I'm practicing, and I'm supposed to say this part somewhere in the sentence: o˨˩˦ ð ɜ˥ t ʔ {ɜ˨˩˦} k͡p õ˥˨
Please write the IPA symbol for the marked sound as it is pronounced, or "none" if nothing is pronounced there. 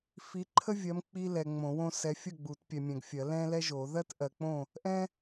ɜ˨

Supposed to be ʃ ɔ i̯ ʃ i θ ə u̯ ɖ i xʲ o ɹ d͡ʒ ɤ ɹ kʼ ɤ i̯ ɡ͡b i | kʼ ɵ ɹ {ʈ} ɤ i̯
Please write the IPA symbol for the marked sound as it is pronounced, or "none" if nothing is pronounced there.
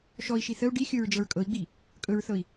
θ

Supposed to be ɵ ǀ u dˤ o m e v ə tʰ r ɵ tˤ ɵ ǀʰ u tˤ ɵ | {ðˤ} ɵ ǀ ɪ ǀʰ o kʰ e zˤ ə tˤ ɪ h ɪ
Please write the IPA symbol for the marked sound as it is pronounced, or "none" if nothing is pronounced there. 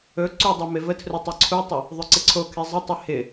ðˤ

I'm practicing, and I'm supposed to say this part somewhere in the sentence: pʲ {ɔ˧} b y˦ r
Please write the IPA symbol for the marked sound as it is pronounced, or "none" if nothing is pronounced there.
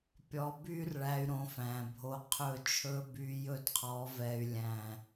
ɔ˧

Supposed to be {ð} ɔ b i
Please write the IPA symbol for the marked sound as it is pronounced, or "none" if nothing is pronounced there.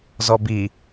z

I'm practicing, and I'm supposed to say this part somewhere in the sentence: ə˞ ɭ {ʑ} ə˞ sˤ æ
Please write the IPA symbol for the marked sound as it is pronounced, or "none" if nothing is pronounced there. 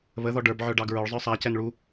zˤ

